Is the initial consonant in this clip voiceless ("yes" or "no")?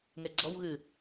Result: no